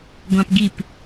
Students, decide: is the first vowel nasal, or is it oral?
nasal